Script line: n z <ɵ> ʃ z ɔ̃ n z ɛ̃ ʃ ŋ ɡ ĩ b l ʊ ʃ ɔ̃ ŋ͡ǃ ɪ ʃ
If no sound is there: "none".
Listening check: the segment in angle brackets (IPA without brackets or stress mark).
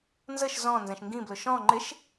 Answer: ə